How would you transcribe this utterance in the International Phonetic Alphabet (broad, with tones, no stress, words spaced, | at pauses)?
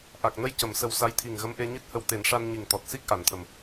ʔa˨˩k̚nə˧j cə˨˩˨msə˨˩w sa˧˥jt̪ʰi˨˩ŋ ɣə˧˥mʔe˧ɲi˦˥t̚hə˧w t̪e˨˩˦nʂa˧n ɲi˨˩ŋt̪ɔ˨˩t̚si˦˥k̚ ʔa˨˩˦nt̪ʰə˨˩m